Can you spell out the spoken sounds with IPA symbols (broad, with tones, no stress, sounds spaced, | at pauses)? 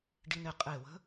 ɖ i˧ n ɪ˧˩ qʼ e˧˩ w ə̤˧˥